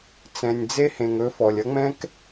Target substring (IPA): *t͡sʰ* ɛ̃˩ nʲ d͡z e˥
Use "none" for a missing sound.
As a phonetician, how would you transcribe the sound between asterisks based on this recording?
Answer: t͡s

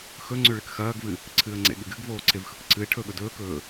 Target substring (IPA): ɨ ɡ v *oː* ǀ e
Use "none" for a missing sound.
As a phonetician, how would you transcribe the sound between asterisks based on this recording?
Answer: oː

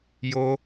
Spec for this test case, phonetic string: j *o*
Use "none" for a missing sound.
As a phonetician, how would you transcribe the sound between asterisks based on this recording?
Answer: o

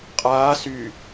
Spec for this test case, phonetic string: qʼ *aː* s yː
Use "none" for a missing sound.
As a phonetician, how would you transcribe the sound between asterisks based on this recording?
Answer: aː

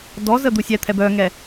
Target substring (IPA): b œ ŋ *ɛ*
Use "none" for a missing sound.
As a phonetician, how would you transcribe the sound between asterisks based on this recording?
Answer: ɛ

